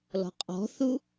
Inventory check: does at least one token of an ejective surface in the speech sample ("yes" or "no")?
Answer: yes